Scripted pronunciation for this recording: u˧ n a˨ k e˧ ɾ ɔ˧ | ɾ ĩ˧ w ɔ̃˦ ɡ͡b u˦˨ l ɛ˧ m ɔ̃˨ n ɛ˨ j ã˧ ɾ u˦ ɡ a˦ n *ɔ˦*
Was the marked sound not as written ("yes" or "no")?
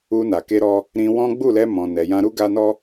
no